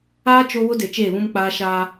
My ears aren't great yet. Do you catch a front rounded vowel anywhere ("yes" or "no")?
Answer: no